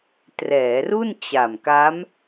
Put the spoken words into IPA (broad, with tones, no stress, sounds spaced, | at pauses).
t r ɛː˩˦ r u˥˩ n t͡ɕ a˨˩ m k a˦˥ m